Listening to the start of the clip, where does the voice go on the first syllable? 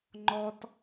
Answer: high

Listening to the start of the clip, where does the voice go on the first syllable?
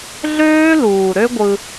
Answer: high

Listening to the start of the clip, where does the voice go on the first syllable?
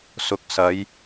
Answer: rising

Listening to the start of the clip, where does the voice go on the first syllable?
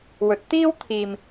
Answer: rising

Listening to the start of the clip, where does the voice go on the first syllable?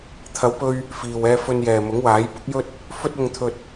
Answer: rising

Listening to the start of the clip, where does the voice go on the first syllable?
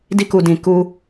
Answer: high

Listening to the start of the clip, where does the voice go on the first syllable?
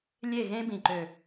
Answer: falling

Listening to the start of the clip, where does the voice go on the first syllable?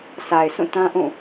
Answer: low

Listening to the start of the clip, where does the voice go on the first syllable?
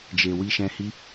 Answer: low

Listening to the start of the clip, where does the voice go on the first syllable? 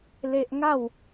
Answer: high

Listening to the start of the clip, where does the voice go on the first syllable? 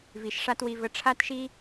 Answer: low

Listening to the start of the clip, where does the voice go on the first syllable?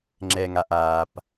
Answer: low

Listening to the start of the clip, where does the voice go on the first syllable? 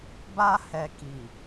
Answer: high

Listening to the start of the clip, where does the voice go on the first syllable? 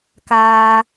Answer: low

